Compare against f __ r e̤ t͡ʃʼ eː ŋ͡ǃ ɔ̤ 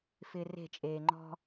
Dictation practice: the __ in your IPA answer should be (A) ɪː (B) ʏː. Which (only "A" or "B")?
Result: A